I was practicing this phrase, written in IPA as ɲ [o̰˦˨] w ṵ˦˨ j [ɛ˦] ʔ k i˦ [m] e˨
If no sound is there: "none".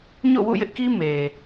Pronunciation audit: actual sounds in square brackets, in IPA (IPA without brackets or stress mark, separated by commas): o̰˦˨, ɪ˦, m